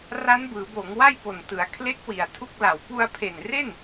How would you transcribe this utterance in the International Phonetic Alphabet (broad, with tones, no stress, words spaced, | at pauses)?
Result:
ra˦˥nbɯː˩˦boː˩˦ŋ wa˥˩jpo˨˩ntɯ˩˦a̯ kʰle˦˥k̚ wi˨˩a̯tʰu˥˩k̚la˨˩w pu˧a̯pʰe˨˩nre˥˩n